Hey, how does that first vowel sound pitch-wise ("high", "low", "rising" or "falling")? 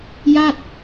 falling